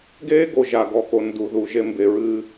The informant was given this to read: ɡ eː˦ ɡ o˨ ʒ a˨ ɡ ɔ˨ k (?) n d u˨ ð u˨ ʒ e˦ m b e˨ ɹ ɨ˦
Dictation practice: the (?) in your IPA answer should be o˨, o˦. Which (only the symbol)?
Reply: o˨